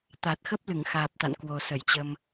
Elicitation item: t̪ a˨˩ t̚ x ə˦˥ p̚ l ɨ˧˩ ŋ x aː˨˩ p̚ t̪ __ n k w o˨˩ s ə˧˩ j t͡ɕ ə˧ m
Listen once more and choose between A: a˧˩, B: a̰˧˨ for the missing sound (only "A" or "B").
B